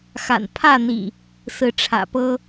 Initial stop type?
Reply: aspirated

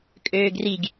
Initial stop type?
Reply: ejective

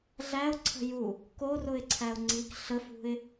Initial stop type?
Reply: click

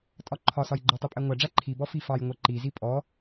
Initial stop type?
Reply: ejective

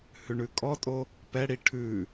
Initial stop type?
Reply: ejective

